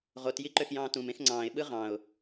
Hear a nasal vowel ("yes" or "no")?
yes